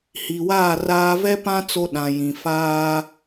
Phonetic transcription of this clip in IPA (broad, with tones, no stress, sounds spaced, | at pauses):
h i˨ w aː˦˨ r aː˦ v ɛ˦ p ã˦ t͡s o˦ ɗ ã˨ j ĩ˨ f aː˦